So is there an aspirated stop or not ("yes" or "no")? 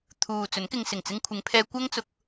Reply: yes